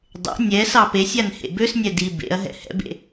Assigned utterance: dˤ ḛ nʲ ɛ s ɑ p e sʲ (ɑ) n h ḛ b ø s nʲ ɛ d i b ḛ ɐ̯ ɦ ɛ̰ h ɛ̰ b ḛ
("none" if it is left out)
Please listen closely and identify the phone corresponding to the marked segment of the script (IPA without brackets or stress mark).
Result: a